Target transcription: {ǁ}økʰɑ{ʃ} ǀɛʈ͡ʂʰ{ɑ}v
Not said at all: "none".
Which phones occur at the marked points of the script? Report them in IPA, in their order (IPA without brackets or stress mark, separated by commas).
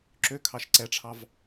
ǁ, ʃ, ɑ